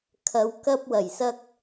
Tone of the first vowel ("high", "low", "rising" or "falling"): low